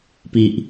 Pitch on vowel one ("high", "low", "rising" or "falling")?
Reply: low